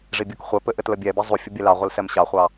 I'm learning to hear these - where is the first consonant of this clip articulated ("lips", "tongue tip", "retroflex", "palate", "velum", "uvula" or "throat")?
retroflex